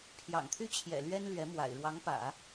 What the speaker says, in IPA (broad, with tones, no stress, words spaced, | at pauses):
pʰjɑ̰˨˩ŋt̪ʰy˥t͡ɕʰjɛ̰˨˩ lɥɛ˥nlɥɛ˧˥mwa̰˨˩ɪ̯ ɻwɑ˧˥ŋpä̰˨˩˦